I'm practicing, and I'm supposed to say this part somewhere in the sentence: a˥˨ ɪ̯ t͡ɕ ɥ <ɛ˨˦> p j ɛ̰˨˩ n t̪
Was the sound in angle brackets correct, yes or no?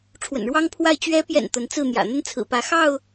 yes